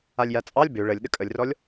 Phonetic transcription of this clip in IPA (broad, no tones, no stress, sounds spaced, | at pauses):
a lʲ j a t͡sʼ ɑ lʲ b ø ɭ ə lʲ ɗ ə kʼ ə lʲ r ɔ lʲ